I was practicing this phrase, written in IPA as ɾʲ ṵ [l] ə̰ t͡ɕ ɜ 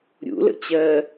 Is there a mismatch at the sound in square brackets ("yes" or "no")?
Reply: no